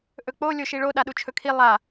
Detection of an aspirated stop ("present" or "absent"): present